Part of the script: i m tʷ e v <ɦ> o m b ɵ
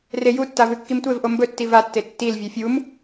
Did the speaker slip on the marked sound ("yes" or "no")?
yes